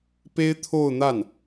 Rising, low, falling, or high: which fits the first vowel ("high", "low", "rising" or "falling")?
high